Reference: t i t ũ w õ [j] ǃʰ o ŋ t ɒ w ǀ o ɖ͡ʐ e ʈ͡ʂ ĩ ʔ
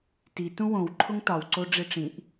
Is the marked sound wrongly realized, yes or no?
yes